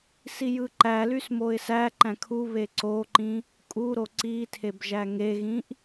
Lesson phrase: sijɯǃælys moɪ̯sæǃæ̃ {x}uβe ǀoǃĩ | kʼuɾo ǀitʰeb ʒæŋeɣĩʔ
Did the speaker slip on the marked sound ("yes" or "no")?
yes